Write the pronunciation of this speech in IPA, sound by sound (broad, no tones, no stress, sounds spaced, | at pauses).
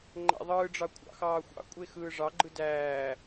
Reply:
ŋ͡ǃ æ̰ ðˤ ɯː ɖ͡ʐ ɑ kʷʰ ɑ̰ x ɑː xʷ ɑ̰ kʷʼ e x ɯː ʐ ɑ ɡ͡ǃ ɯ d æː